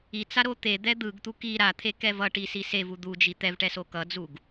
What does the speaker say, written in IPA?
i t͡s a ɾ o t̪ e d̪ ɛ d̪ ɯ ɡ t̪ u k i ɾ a t̪ʰ e k ɛ v ʌ ʈ i s i s e v u d̪ u d͡ʒ i t̪ ɛ v ʈ ɛ s o k ʌ d͡z u ɡ

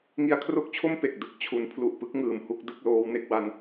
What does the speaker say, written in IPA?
ŋ i˧ a̯ kʰ r o˥˩ k̚ t͡ɕʰ o˥˩ m p e˨˩ k̚ d ɯ˦˥ k̚ t͡ɕʰ u˩˦ n pʰ l u˨˩ ʔ p ɯ˦˥ k̚ ŋ ɯː˨˩ m h u˥˩ k̚ d ɯ˥˩ k̚ l oː˦˥ w n e˥˩ k̚ w a˧ n

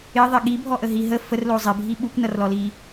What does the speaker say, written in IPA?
ɪ ðˤ ɪ ɠ i bʱ ɔ ʔ ə ɦ i ɦ ə f ə r l o zˤ ɪ bʱ i ɓ u kʷ n ʌ r l ɔ l i

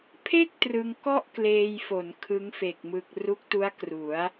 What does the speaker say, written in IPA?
pʰ e˥˩ k̚ t r ɯ˧ ŋ k ɔ˥˩ ʔ k l eː˧ j f o˩˦ n kʰ ɯ˦˥ ŋ f e˨˩ k̚ m ɯ˨˩ k̚ r u˦˥ k̚ t u˦˥ a̯ k r u˩˦ a̯

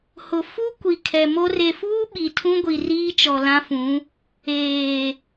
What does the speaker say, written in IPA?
h ʊ˨ f u˦ kʷ i˨ kʰ ɛ˨ m o˦ r e˨ f uː˦ ɓ i˨ tʰ ũ˦ ɡʷ i˨ r iː˦ t͡ʃ ɔ˨ l ã˦ f ũ˨˦ | eː˨

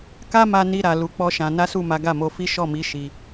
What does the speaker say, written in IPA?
k a˦ m a˧ n i˧ ɾ a˨ l u˨˦ k͡p ɔ˦ ʃ ã˧ n a˦ s u˦˨ m a˨˦ ɡ a˦˨ m o˧ f i˦ ʃ ɔ˦˨ m i˨˦ ʃ i˧

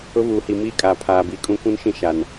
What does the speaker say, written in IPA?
ʊ˦ v uː˨ h i˨ m iː˦ kʼ aː˨ pʰ aː˨ b i˨ kʼ ũ˦ kʷ ũ˦ n ʃ ĩ˦ ʃ a˨ n

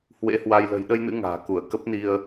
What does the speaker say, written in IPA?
h w ḛ˧˥ h w a˧ j l ə̤˨˩ j ɗ ə˧ j n ɨ̰˧˥ ŋ a̤ː˨˩ k u˧˩ ə̯ k ə˦˥ p̚ n i˧ ə̯

